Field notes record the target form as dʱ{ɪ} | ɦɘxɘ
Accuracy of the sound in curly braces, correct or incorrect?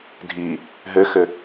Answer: incorrect: i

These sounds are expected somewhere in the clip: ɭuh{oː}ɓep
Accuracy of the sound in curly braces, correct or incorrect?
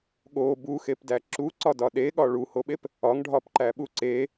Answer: incorrect: o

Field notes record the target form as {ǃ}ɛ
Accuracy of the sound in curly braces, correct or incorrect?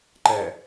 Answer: correct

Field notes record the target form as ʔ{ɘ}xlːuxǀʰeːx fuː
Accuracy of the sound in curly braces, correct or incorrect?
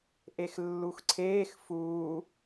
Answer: incorrect: e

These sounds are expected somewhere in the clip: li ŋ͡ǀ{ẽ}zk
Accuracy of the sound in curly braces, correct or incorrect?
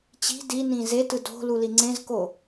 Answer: correct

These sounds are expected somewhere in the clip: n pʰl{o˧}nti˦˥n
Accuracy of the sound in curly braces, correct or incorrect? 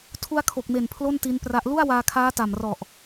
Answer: incorrect: o˥˩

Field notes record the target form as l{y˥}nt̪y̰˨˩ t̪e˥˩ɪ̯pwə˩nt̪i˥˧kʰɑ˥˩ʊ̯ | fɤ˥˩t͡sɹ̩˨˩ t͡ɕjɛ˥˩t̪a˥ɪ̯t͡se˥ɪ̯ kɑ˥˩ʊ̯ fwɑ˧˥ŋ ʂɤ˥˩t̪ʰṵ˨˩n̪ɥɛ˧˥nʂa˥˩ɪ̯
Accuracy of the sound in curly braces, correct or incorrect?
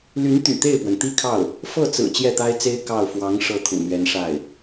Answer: incorrect: y˧˥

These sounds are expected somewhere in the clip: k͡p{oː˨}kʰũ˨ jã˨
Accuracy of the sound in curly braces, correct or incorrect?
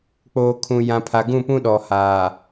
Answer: correct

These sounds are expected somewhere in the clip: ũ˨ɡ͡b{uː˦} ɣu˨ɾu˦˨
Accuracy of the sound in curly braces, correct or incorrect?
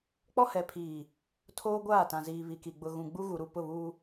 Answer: incorrect: u˦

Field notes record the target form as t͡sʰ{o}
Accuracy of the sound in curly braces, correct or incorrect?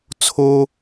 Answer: correct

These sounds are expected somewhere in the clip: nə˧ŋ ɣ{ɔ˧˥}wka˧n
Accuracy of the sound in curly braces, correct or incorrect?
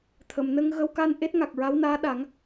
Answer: incorrect: ə˧˥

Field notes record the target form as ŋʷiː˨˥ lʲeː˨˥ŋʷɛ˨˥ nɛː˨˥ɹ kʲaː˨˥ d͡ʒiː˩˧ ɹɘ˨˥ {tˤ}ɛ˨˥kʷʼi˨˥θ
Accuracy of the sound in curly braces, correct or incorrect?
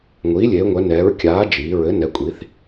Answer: incorrect: n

